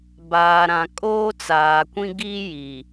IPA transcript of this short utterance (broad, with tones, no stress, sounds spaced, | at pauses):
b aː˨ ɾ ã˨ kʼ oː˦ t͡s aː˨ kʷ ĩ˦ ɡ i˦ j i˨